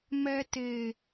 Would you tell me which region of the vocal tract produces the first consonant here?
lips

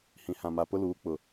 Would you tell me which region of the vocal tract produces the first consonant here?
throat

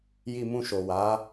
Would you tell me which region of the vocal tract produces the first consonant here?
palate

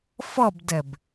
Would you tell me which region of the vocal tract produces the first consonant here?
lips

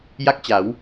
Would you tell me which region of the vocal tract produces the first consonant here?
palate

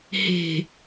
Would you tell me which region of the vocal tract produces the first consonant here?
throat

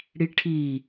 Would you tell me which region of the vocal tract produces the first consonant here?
retroflex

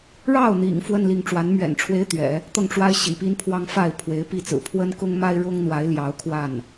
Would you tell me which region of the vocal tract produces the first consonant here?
retroflex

